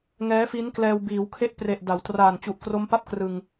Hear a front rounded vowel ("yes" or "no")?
no